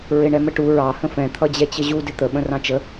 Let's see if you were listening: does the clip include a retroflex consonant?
yes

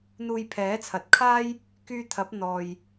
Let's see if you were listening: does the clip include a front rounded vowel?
yes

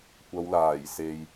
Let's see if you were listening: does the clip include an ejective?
no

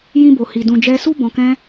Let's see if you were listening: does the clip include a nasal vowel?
yes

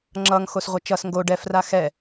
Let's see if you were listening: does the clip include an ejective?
no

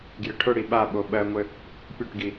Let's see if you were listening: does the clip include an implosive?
yes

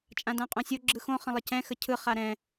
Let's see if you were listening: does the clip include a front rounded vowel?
no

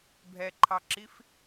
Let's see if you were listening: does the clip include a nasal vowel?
no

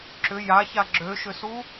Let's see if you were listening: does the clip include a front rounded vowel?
yes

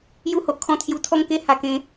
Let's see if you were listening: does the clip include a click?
no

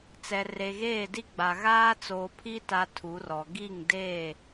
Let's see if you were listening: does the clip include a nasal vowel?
no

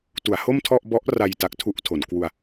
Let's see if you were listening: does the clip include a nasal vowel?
no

